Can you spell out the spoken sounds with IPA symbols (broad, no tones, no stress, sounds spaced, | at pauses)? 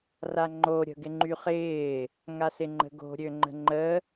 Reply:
r a ŋ͡ǃ o ɾʲ ə̤ ɡ ɪ ŋ͡ǃ y χ ɪː | ŋ a s ɪ ŋ͡ǃ ə̤ ɡ o̤ ɾʲ ø ŋ͡ǃ ə̤ ŋ͡ǃ ə